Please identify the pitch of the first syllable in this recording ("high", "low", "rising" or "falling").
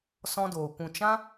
high